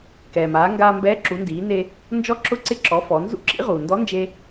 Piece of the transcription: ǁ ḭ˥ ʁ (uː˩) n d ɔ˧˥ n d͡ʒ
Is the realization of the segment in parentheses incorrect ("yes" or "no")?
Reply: no